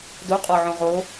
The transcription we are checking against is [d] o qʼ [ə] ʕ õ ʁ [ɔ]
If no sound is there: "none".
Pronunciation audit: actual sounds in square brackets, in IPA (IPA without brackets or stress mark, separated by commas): d, ɔ, o